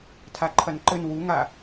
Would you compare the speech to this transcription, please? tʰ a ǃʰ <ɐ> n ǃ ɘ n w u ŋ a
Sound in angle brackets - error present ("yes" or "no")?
no